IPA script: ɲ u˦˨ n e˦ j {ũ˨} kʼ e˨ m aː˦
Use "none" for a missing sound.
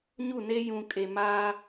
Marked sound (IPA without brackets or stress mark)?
ũ˨